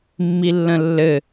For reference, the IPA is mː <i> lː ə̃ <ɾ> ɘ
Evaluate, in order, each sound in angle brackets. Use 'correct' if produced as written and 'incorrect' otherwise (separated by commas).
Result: correct, incorrect